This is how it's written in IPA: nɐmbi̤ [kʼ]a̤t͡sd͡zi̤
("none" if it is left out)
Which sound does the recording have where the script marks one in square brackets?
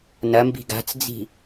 ɡ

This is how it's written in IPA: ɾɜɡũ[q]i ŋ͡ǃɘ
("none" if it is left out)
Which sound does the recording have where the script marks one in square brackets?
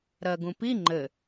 p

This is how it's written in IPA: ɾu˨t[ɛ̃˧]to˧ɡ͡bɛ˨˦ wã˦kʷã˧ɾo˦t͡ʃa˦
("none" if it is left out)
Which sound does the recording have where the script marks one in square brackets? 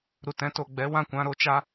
ɛ̃˧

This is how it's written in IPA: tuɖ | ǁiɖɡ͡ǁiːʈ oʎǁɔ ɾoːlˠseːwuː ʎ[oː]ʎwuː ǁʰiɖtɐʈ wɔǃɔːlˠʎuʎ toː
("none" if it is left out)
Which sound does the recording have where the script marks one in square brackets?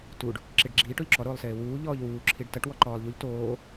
ɔː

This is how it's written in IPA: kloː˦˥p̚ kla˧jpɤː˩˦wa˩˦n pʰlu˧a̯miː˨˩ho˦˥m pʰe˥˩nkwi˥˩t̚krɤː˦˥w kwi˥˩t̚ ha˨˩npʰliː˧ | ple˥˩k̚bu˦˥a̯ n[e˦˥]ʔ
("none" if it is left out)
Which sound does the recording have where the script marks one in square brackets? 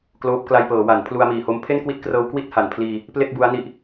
i˦˥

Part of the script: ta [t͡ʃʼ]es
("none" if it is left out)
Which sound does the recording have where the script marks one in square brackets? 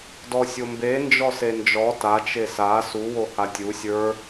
t͡ʃ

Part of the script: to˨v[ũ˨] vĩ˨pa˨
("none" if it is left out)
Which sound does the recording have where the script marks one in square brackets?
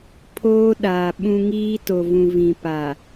ũ˨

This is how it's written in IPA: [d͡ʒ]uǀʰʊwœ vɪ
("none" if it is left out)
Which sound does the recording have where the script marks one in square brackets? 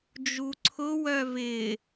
d͡ʒ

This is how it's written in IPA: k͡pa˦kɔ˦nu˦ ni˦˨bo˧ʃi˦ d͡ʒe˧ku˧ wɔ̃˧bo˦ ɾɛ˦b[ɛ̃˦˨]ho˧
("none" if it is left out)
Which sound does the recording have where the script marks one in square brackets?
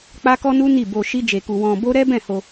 ɛ̃˦˨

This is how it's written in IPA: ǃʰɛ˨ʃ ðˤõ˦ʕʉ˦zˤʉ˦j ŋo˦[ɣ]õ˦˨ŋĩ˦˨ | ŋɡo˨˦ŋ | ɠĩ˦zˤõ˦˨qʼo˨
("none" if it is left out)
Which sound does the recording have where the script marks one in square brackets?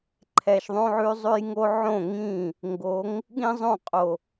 ʕ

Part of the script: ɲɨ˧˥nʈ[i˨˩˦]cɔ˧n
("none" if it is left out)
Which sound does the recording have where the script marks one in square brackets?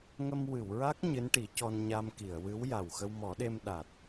i˨˩˦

